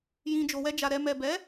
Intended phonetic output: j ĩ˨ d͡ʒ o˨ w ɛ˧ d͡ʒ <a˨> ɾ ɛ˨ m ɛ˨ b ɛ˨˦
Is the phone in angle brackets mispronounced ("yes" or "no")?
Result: no